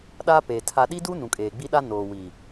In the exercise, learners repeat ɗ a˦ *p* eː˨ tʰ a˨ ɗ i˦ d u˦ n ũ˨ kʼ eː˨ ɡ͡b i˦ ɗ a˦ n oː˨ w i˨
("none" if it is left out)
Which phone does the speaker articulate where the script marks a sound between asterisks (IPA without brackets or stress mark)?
p